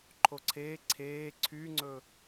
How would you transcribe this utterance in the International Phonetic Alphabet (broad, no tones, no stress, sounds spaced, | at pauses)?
ǃʰ o ǀʰ eː ǀʰ eː ǀʰ yː ŋ͡ǀ ɵ